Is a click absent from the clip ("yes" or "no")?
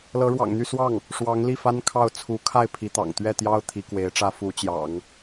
yes